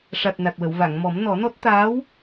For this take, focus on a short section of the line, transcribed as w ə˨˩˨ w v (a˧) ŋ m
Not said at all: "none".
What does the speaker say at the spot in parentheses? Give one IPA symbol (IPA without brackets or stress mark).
a˨˩˨